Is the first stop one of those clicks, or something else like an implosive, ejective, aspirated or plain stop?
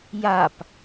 plain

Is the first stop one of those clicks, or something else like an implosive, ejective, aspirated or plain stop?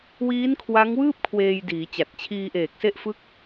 aspirated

